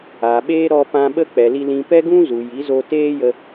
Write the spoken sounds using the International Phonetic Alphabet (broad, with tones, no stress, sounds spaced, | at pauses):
a˨ ɓ eː˧ ɾ ɔ˧ p ã˧ ɓ ə˦ k͡p ɛ˨ l i˧ l ĩ˧ p ɛ˦ ɡ ũ˦ z u˨ j i˨˦ z o˧ t eː˦ j ə˧